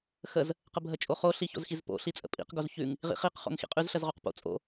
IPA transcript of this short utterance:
xəz | qəbʱət͡ʃʼoχo ɬiço̰zxizpo̰ ɬit͡sʼə̰pʼḭq ɡozçʉŋ | ʁḭχiq χo̰ŋxḭqʼʉz ɬəzʁoqpo̰ t͡sʼo̰

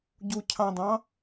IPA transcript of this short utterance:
ɟucʰɑ̃dˤɑ̃

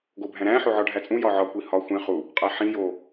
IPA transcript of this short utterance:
ɡobʱæ̃ɾæ̃ ħoʕɒɖʱæt͡sʼũ jɒʕɒ kʷihɒ xʷẽ χu | qʼæħĩ jo

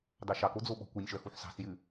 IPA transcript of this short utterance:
dɑʃɑko d͡zoɓɔ̤kʷœnʲʃœ xuħsɑ̤sjʉ

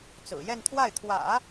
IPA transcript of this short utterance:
t͡sɹ̩˨˩jɛ˥˧nt̪ʰwa˥˩ɪ̯ t̪ʰwä̰˨˩˦

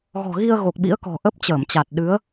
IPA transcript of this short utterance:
ɣɔ̤˨˩ɣi˧ə̯ ɣo˨˩k̚ɓḭ˧˥ə̯kɔ̤˨˩ ʔə˦˥p̚t͡ɕəː˧˩mt͡ɕa˨˩t̚ ɗɨ˨˦ə̯

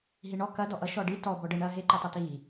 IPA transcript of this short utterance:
ɦiɳɔ kɐ dɔʔʌ ʃɔɖi tɔ bɔɖə ɳɐ ɦe ǃʌtˤʌt̪i

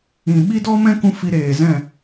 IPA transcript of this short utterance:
ĩ˨ ɓi˦dɔ˦mɛ̃˦kũ˧ fi˧ɾeː˨zɛ̃˦˨

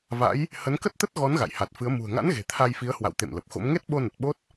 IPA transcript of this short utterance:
va̰˧˥j | hə˨˦nkə˦˥t̚t̪ə˦˥t̚ɣɔ˨˦n ɣa̰˧˨j ha˨˩t̚fɨ˨˦ə̯ mṳ˨˩ə̯ŋa̰˧˥nɣe̤˨˩ t̪ʰa˧jfi˨˦ə̯hwa̰˧˨w t̪ḛ˧˨m lə˨˩p̚xo̰˧˥m ŋe˦˥t̚ɓo˧nə˨˩t̚ ɓo˦˥t̚

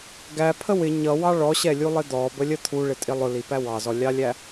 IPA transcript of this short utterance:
ɡæpʰə wɪ ɲʌwɑ ɭɔɕɛlʲulˠɪ d̪ɔbəlʲə t̪ʰuɭɪtʼɪ lˠʊlipæ wɑzɔlʲɑlʲæ

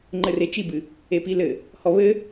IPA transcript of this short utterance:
ŋ͡ǃɘret͡ʃibɨ | epilɘ | hɔβɘ

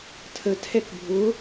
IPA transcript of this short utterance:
tʰə tʰɛkbʱʊ

